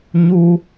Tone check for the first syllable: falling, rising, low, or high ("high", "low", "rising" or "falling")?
high